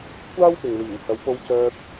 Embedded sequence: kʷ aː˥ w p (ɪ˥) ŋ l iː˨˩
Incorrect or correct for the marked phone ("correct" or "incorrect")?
incorrect